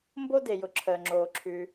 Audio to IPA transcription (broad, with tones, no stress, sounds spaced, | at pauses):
m b o˥ d e˩ j ʊ˩ ǁʰ əː˩ ŋ͡ǁ oː˩ ǁʰ ʉ˩